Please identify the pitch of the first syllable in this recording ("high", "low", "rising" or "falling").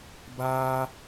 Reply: high